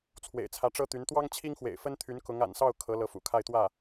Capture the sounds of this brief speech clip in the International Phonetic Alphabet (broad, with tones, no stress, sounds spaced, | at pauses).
t͡sʰ w ḛ˨˩ ɪ̯ t͡sʰ ä˧˥ ʈ͡ʂ ɤ˥ t̪ y˧˥ n t̪ w ɑ˥ ŋ t͡ɕʰ i˥ ŋ x w ḛ˨˩ ɪ̯ f ə˥ n t̪ʰ y˧˥ n k ʊ˧˥ ŋ a̰˨˩ n s ɑ˥˩ ʊ̯ kʰ ɤ˧˥ l ɤ˧˥ f ṵ˨˩ kʰ a˥˧ ɪ̯ t̪ w ä˥˩